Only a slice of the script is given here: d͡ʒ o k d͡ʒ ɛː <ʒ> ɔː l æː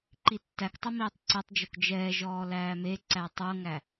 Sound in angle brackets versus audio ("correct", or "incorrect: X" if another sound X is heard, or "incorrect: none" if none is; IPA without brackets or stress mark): correct